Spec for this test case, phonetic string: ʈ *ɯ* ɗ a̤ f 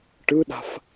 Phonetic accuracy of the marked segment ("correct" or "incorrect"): correct